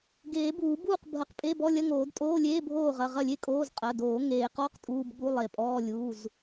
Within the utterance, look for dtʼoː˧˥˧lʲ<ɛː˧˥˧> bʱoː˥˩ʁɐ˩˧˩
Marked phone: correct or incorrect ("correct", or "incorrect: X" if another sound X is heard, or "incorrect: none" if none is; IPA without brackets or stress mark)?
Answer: incorrect: eː˧˥˧